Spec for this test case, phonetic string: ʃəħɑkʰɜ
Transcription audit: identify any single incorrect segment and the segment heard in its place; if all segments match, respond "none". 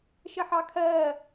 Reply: none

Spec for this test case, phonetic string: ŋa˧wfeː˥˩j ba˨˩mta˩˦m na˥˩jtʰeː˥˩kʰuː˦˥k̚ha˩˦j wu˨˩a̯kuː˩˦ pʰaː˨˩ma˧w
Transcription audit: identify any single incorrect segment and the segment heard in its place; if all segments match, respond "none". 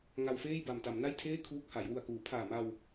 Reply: none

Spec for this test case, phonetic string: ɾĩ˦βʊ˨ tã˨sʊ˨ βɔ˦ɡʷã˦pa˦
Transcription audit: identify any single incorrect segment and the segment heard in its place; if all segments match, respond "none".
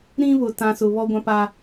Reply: none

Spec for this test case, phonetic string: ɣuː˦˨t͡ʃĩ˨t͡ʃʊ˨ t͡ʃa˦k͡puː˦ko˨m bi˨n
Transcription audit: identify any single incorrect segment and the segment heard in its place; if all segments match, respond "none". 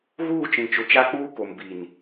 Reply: none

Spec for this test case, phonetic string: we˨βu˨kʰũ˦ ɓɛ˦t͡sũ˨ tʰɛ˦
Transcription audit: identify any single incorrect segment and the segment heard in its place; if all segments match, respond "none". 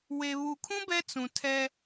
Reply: ɓ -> b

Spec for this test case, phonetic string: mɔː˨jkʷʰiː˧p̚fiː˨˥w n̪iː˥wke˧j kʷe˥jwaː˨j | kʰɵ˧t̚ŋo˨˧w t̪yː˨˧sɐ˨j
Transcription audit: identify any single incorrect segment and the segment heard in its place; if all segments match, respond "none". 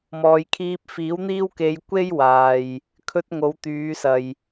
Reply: kʷʰ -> kʰ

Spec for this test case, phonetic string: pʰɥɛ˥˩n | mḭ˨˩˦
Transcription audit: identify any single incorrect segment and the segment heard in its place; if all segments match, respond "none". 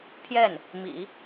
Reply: ɥ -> j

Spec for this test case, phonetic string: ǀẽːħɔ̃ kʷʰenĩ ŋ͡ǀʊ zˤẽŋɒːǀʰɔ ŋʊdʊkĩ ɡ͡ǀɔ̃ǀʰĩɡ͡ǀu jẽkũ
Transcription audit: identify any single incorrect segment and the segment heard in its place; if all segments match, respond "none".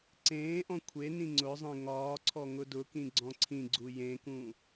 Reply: ħ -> ʔ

